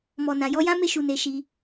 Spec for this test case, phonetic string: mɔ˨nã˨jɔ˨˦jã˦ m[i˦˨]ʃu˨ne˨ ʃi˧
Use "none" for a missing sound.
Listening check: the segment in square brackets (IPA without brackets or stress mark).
e˦˨